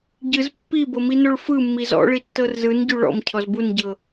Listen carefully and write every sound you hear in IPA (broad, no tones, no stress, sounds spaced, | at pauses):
ɟ ɯ z pː i b ɤ m i n o ɭ f ɯ mː i z ɔ̰ ɭ i tː ɤ r z ɯ n ɟ u ɭ ɔ̰ m cʰ ɔ z b u n ɟ ɤ